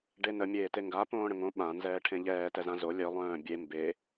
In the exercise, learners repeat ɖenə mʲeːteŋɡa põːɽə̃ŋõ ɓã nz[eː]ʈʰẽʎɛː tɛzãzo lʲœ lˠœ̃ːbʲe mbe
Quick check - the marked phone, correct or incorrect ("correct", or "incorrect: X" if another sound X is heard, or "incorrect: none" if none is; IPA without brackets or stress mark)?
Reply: incorrect: ɛː